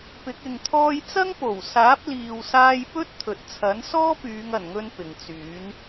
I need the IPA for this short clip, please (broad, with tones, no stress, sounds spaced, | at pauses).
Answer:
p ɪ˨˥ k̚ ɪ˨ ŋ t̪ʰ ɔː˧ j t͡s ɐ˥ ŋ p o˨˩ w s aː˨˥ p̚ l iː˨ w s aː˧ j p ɵ˥ t̚ t̪ʰ ɵ˨ t̚ t͡sʰ ɐ˨˥ n s ɔː˥ p yː˨˧ ŋ ɐ˨˩ n ŋ ɵ˧ n p ɪ˨ ŋ t͡s yː˨˥ n